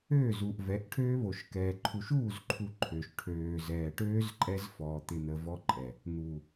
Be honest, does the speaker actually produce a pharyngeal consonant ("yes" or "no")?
no